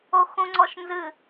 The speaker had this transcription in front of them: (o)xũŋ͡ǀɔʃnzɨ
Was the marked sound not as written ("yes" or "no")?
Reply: no